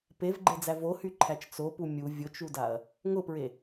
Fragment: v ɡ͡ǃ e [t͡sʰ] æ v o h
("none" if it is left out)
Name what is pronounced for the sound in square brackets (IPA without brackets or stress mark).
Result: d͡z